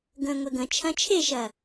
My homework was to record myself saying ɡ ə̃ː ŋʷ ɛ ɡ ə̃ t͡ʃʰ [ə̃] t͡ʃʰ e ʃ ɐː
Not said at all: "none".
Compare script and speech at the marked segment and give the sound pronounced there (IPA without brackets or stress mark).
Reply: ɐ̃